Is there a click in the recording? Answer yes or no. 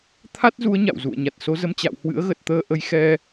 no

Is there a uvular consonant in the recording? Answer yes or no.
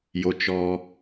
no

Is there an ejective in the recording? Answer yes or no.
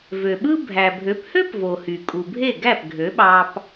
yes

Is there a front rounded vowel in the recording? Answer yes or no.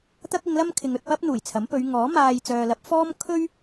yes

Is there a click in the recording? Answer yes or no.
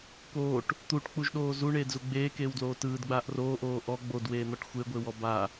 no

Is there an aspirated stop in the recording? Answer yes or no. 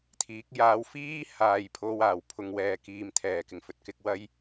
yes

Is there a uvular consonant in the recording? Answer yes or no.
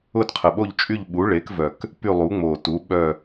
yes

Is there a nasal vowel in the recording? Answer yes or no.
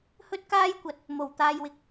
no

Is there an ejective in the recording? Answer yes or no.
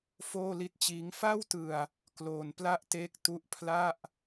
no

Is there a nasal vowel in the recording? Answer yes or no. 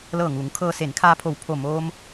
no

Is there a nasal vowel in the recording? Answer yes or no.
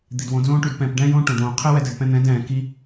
yes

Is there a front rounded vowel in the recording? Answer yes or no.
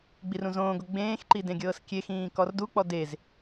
no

